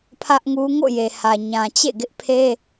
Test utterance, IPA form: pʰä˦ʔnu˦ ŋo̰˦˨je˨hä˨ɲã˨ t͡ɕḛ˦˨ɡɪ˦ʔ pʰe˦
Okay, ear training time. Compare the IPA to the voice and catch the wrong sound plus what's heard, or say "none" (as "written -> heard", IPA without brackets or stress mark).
n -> ŋ